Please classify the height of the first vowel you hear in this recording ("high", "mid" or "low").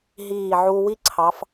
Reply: high